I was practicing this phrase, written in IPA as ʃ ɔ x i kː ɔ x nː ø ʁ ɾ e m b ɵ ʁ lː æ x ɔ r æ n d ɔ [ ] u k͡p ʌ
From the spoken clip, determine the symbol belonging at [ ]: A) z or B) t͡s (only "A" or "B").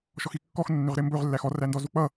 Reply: A